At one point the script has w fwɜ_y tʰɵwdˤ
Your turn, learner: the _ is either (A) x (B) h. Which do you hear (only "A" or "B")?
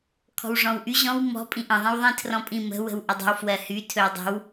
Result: B